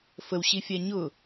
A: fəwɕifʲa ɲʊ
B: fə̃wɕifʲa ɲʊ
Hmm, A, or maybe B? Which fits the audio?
A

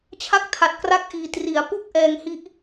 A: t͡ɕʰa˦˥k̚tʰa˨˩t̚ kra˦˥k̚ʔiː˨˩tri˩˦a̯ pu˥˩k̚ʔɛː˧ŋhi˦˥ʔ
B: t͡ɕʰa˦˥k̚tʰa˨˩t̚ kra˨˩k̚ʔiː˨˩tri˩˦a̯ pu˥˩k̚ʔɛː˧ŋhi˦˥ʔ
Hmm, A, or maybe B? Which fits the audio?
A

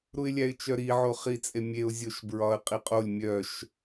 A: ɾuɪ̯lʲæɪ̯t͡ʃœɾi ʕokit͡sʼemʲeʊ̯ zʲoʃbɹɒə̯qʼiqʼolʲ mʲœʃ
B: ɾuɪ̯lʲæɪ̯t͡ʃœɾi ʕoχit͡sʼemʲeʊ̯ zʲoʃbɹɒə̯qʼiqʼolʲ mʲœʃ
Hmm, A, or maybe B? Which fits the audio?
B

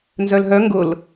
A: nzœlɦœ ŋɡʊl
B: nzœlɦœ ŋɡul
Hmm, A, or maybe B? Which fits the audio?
A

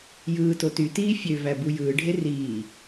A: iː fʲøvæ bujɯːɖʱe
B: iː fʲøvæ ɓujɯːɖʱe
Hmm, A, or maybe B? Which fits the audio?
A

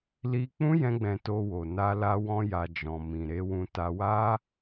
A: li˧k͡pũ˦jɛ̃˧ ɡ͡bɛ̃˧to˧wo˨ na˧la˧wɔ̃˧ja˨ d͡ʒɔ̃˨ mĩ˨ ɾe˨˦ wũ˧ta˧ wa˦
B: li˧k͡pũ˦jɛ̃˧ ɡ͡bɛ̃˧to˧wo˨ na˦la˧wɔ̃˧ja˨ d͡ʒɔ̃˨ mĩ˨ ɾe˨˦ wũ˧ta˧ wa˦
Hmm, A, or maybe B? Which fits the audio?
A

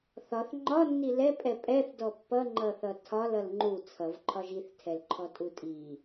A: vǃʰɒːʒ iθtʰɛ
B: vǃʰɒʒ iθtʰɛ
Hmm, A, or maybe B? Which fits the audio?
B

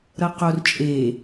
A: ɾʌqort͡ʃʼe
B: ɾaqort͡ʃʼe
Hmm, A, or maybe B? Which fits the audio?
A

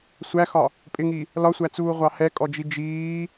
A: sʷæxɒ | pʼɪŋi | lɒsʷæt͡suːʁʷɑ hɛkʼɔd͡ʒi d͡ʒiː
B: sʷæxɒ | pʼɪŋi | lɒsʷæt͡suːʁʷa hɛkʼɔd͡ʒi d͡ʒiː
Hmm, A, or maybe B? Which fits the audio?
A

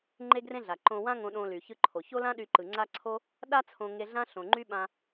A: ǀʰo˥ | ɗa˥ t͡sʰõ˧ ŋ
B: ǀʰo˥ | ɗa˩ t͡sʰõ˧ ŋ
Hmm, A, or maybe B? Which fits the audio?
A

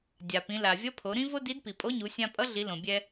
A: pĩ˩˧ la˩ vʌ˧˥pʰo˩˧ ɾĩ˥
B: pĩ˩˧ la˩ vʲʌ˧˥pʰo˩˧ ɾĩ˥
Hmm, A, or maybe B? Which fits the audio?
B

